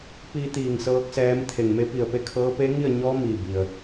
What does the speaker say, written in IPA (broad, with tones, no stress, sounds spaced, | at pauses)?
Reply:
p i˧ t̪ iː˧˩ ŋ s ɤː˧˥ k̚ s ɛː˧˥ m t̪ʰ e˧˩ ŋ m e˧˥ p i˧˩ ə̯ p e˧ kʰ ɤː˧˥ p e˧˥ ŋ i˥˨ ə̯ ɲ ɔː˧˥ m i˧˩ b i˩ ə̯